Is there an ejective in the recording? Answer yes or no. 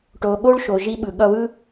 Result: no